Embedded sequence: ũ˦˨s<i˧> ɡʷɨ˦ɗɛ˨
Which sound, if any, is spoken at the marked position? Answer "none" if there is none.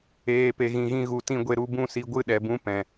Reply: i˧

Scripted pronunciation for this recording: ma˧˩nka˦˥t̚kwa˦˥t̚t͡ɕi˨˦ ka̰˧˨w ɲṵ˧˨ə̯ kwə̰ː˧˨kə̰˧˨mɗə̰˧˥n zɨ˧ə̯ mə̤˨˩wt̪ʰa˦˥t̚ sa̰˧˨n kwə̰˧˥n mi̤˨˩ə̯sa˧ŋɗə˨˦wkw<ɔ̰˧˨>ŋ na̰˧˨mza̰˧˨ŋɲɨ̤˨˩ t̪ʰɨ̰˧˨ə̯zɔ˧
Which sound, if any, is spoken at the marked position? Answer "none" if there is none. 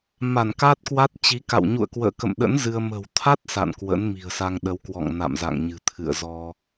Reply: ɔ̰˧˨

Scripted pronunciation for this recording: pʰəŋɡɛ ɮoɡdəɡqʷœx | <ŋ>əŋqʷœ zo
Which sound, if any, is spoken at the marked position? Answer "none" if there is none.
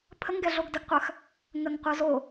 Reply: ŋ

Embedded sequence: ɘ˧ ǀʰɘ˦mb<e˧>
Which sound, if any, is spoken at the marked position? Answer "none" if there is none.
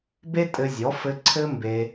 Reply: e˧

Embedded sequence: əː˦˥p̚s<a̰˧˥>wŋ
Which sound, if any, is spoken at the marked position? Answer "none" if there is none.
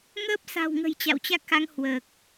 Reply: a̤˨˩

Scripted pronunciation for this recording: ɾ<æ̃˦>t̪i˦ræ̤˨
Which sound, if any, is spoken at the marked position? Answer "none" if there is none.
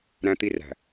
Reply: æ̃˦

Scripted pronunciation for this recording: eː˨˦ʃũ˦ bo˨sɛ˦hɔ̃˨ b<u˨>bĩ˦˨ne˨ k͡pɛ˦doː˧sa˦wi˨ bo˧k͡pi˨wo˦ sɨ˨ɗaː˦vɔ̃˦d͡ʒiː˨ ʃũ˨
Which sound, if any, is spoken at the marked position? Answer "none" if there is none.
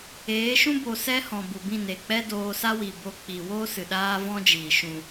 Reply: u˨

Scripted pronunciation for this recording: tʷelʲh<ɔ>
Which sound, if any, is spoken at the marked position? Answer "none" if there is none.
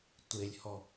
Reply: ɔ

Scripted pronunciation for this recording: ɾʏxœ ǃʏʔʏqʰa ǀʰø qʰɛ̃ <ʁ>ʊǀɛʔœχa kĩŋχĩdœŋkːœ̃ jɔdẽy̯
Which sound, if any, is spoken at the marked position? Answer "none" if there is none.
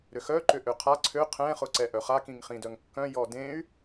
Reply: χ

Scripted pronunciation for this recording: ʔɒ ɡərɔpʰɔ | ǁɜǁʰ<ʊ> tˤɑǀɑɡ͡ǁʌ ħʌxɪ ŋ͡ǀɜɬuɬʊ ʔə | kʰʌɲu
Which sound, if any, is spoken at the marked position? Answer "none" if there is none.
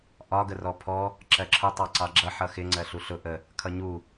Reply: ʊ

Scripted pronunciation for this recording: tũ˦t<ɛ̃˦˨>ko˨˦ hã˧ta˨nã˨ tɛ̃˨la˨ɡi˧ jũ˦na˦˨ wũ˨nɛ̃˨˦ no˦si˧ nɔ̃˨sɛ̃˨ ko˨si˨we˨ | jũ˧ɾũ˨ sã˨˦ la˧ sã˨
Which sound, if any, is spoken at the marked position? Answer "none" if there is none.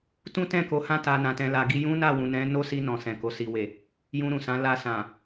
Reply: ɛ̃˦˨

